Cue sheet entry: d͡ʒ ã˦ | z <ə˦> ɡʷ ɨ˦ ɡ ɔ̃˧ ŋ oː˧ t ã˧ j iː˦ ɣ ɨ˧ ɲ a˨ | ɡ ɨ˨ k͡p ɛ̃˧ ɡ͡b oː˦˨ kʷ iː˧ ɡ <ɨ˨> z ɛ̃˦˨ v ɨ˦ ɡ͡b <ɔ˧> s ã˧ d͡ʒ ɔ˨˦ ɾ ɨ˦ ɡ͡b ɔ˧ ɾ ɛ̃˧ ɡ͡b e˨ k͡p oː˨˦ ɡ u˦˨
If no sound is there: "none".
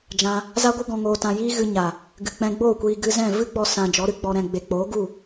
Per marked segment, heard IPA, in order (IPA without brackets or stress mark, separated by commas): a˦, ɨ˧, ɔ˧